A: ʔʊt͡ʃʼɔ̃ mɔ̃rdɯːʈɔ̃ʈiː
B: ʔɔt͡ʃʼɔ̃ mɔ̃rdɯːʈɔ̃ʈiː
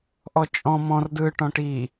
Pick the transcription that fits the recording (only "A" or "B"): B